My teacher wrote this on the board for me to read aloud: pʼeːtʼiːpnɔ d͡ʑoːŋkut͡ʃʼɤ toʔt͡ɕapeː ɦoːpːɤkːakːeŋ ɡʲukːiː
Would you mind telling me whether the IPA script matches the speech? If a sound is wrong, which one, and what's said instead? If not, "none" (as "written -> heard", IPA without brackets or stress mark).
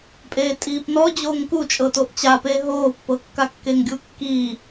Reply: none